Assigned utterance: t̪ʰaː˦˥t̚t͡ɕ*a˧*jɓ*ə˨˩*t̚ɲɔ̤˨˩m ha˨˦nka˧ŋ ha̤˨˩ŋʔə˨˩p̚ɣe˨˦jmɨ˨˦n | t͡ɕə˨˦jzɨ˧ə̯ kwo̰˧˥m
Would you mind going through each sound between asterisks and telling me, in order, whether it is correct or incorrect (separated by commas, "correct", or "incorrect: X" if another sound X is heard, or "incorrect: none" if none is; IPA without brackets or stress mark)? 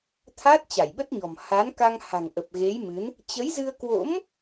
incorrect: a˧˩, incorrect: ə˦˥